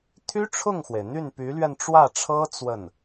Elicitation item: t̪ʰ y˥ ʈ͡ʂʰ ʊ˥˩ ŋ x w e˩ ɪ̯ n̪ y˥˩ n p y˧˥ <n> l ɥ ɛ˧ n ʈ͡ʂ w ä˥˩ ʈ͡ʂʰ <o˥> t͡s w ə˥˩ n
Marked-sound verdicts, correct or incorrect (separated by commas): incorrect, incorrect